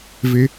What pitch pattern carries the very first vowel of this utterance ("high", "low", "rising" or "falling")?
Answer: high